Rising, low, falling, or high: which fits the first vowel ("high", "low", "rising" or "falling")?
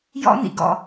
high